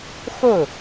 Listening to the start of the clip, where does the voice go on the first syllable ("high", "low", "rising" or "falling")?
falling